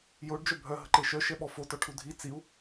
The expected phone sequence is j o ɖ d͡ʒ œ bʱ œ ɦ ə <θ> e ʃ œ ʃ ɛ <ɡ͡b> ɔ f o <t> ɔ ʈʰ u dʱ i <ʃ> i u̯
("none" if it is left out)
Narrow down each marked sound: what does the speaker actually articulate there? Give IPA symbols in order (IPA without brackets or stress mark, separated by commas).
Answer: ǃ, ɓ, t, t͡s